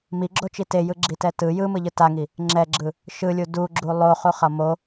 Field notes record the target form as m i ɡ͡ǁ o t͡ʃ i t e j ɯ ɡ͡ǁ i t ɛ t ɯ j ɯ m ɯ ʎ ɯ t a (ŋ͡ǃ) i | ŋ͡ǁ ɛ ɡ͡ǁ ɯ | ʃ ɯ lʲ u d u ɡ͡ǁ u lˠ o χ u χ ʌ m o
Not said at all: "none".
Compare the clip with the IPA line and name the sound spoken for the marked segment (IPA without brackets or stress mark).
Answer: ŋ